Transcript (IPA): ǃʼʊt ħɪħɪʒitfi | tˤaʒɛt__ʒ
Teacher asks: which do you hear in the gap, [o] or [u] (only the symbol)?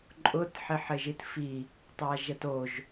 o